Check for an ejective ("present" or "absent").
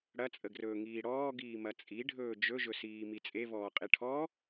present